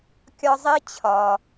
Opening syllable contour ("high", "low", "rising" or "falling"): high